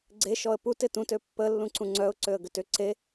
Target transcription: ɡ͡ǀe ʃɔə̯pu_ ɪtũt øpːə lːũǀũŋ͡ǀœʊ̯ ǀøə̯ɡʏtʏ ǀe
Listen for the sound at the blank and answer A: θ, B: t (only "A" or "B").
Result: B